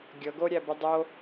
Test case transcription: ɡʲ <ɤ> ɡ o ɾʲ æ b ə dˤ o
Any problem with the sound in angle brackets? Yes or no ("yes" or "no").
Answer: no